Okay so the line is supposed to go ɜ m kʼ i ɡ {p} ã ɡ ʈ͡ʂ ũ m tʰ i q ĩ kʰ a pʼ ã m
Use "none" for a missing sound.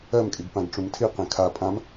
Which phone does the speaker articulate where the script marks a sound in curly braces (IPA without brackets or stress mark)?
p